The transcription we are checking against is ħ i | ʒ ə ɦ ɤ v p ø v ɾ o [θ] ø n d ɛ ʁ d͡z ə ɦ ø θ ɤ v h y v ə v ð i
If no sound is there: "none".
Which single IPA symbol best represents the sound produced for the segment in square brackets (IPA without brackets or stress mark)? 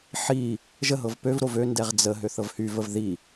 v